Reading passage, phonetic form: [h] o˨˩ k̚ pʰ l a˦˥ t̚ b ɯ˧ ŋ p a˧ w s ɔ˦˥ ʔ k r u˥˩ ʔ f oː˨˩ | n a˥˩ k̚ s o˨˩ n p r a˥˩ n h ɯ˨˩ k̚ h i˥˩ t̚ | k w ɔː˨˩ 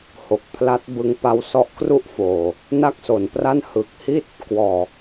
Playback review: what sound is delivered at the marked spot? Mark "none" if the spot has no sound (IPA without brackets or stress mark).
h